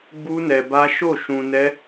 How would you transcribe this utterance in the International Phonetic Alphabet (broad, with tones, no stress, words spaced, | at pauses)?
ɡ͡bu˦nɛ˧ba˦ ʃo˦˨ʃũ˧nɛ˦